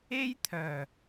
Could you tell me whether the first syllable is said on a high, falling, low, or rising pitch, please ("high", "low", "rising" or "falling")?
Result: high